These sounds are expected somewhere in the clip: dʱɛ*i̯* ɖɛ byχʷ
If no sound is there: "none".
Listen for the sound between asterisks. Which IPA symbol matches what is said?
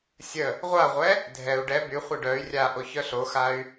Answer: u̯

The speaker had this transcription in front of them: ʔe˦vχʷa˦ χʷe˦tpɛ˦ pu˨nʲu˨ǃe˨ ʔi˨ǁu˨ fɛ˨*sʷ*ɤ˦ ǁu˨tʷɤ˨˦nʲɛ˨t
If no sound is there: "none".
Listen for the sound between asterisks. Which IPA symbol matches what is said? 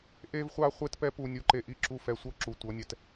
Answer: sʷ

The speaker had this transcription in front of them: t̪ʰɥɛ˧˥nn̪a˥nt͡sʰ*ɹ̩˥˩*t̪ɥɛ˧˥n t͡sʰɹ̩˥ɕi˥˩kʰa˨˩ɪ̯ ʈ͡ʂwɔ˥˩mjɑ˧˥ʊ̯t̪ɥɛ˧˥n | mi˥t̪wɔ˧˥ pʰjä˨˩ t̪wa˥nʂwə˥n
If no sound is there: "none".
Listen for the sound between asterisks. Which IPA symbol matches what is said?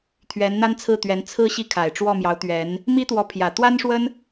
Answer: ɹ̩˥˩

